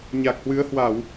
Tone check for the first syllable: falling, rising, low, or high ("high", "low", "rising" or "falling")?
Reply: low